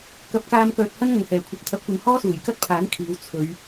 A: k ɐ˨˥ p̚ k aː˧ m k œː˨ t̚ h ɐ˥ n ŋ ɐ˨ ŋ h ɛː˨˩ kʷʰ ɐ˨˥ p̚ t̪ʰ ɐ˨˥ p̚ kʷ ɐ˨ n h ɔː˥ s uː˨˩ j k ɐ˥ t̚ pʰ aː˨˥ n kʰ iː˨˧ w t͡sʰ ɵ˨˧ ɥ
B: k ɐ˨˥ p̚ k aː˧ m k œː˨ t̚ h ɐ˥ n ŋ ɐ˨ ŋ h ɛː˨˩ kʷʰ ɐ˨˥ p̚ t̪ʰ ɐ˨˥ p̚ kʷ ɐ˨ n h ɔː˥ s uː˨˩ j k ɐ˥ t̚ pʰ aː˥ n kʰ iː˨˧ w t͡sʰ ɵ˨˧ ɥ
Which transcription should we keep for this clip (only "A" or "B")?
A